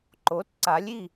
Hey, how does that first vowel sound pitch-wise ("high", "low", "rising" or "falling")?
rising